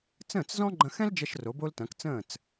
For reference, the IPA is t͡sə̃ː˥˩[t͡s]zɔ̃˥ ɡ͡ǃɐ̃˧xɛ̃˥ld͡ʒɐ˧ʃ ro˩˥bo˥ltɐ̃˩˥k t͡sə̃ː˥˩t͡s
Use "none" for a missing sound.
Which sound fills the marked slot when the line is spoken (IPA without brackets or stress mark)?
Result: t͡s